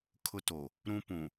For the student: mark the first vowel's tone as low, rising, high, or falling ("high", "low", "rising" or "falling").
high